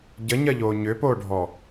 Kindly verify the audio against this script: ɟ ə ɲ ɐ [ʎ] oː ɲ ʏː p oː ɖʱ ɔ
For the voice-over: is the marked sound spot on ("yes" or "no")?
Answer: yes